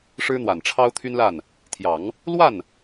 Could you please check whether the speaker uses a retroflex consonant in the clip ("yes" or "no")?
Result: yes